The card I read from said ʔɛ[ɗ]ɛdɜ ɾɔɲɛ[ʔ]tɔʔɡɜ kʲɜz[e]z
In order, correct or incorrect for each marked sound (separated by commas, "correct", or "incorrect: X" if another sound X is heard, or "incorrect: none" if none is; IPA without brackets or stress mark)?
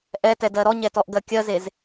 incorrect: t, incorrect: none, correct